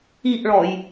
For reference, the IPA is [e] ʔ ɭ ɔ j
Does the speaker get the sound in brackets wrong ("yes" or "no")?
yes